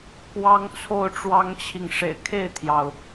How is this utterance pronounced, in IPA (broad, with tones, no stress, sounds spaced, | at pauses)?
k w ɑ˦ ŋ t͡sʰ o˥˨ ʊ̯ ʈ͡ʂ w ɑ˦ ŋ t͡ɕʰ i˨ ŋ ʂ ḛ˨˩ ɪ̯ kʰ e˥˨ ɪ̯ t̪ʰ j ɑ˩ ʊ̯